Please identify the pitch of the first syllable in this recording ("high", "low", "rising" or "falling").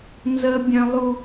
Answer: high